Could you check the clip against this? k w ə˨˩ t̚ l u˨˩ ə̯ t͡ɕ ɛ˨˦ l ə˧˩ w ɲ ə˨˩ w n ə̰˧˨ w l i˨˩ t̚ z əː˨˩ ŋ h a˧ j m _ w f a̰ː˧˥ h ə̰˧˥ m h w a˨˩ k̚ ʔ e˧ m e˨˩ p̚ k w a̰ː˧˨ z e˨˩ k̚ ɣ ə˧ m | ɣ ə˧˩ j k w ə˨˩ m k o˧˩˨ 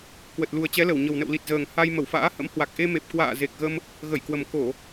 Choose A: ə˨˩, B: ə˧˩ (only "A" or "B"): B